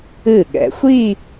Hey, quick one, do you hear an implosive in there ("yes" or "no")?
yes